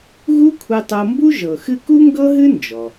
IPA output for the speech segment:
ɣ u˥ kʷʰ ɛ˧ tˤ ɤ˧ m b u˥ ʒ ɤ˩ x ɨ˧ k u˥ ŋ ɡ ɤ˥ ɦ ɨ˥ n d͡ʒ ɔ˩

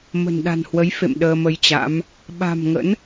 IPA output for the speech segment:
m ə̤˨˩ n ɗ a̤˨˩ n h w ə˨˦ j f ḛ˧˨ m ɗ əː˧ m ə˧ j t͡ɕ a̰˧˥ m | ɓ a̤˨˩ m ŋ ə̰˧˥ n

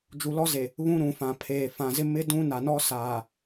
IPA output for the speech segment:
d͡ʒ u˨ l ɔ˦ z e˨ | β ũ˦ ɾ ũ˨ f ã˨ pʰ eː˨ f ã˨ z ɪ˦ m ɪ˦ d ũ˦ n a˨ n ɔ˦ s aː˨

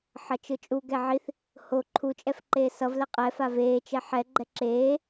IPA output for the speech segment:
ħ ʌ t͡ʃ ɯ t͡ʃʼ u ɡ ɛ ʕ i θ | h o ǃʰ u t͡ʃʼ ɛ f ǃ eː s ʌ v l ɛ qʼ ɛ f a v eː t͡ʃ ɛ ħ ɛ ɡ͡ǃ ɛ ǁ eː

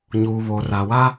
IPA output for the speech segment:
ɲ uː˨ β o˨ r a˨ w a˦

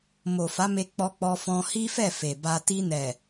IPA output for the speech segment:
m o˨ f a˨˦ m e˧ k͡p ɔ˧ k͡p ɔ˧ f ɔ̃˧ h i˦ f ɛ˦˨ f e˨ b a˧ t i˧ n ɛ˨

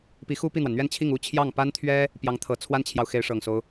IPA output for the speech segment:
p i˧˥ x u˥ p i˥˩ n̪ w a˩ n n̪ ɥ ɛ˥˧ n t͡ɕʰ i˥˩ ŋ u˥ t͡ɕʰ j ɑ˥˩ ŋ p a˥ n t̪ʰ ɥ ɛ˥ | p j ɑ˧˥ ŋ t̪ʰ ɤ˨˩ t͡sʰ w a˥ n t͡ɕʰ j ɑ˨ ʊ̯ x e˧˥ ɪ̯ ʂ ɤ˨˩ ŋ s o˦ ʊ̯

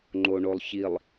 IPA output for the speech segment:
ŋ͡ǃ o ɳ o lˠ ç i lˠ

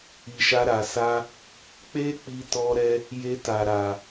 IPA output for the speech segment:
i˨ ʃ a˧ ɾ a˨ s a˧ | k͡p e˦ k͡p i˧ t ɔ˧ ɾ ɛ˧ | j e˧ t a˨ ɾ a˨

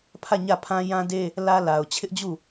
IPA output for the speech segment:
pʰ ä˦˨ ɲ ä˦˨ pʰ ã˦ j ã˦ d e˦ | l ä˦ l a˨ ʊ̯ t͡ɕʰ ɪ˦ ʔ d͡ʑ u˦˨

